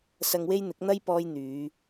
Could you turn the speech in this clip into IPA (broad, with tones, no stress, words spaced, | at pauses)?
sɐ˧ŋwe˥jn̪ɪ˨˥k̚ n̪ɐ˥jpɔː˧j n̪yː˨˧